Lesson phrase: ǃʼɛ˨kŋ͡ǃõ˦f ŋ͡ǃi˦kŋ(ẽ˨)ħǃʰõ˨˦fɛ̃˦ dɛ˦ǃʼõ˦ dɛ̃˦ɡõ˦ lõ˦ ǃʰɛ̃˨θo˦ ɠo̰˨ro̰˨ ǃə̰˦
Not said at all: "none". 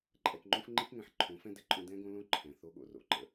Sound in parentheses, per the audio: ɛ̃˨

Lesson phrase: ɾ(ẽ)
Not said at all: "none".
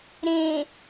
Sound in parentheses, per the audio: ẽ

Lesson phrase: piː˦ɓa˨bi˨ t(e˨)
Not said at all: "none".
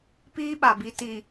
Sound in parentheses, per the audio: i˨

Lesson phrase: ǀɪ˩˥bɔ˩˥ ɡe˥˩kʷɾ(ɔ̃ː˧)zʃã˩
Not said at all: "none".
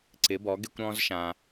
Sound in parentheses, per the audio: ɔ̃ː˧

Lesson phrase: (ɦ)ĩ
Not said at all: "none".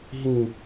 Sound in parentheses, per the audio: ɦ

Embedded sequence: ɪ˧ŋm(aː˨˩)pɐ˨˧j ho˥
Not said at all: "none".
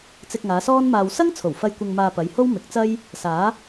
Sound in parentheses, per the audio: aː˧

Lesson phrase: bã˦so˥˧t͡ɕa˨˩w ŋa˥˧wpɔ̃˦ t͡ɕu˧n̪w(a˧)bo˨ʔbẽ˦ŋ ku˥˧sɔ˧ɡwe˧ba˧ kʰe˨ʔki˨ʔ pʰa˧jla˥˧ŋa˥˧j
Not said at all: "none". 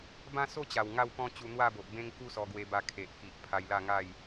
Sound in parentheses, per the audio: a˥˧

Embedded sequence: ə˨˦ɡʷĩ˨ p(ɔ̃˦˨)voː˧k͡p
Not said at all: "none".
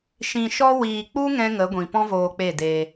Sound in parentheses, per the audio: ɔ̃˦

